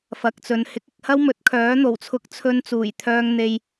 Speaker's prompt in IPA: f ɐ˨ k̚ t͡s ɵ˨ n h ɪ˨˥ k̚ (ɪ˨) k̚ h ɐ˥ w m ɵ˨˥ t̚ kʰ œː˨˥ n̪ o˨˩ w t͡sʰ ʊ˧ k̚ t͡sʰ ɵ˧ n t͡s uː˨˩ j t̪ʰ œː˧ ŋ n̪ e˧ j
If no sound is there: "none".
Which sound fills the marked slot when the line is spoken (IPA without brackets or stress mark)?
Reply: ɪ˨